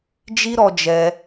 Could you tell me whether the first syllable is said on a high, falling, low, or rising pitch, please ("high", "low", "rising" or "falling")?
high